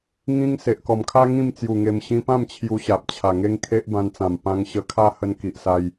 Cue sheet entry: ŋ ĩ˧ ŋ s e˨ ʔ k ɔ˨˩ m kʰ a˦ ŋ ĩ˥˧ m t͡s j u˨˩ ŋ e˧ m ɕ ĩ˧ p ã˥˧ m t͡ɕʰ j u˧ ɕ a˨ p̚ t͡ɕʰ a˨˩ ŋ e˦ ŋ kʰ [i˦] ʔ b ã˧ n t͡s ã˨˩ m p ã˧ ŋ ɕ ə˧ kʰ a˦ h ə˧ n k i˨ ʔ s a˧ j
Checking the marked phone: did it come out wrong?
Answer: yes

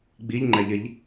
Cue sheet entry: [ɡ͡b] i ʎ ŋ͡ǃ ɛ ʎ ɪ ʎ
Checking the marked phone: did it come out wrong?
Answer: no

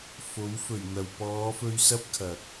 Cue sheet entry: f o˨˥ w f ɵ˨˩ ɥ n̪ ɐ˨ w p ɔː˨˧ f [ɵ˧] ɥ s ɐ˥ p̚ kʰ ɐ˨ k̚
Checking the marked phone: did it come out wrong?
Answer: no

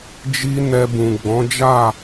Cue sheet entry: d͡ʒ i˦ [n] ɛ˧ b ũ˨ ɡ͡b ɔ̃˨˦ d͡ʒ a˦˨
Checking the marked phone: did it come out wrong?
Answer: no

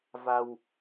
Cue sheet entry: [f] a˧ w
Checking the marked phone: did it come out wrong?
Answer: yes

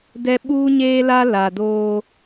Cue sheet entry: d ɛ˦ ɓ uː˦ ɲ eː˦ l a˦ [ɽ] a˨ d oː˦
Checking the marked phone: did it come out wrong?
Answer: yes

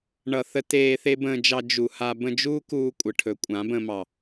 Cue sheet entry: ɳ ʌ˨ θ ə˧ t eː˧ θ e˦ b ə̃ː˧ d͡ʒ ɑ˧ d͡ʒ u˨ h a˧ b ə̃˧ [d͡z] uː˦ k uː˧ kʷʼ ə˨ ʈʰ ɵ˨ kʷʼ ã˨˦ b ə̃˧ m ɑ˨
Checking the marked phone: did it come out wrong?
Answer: yes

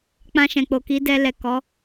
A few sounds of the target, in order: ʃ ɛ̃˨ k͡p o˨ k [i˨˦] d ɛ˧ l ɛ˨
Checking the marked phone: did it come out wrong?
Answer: no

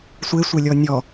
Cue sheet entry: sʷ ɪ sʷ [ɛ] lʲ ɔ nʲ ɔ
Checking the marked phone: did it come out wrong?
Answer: yes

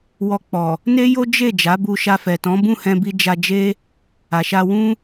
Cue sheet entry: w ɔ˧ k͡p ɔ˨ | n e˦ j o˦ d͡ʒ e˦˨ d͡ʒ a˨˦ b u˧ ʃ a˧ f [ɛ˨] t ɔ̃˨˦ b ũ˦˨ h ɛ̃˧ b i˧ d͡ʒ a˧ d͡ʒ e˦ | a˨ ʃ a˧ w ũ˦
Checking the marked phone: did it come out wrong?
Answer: no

